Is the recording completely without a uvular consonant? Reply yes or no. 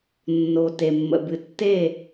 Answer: yes